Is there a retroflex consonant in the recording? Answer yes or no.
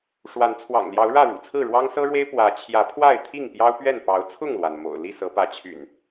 yes